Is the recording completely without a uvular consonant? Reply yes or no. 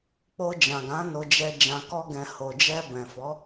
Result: yes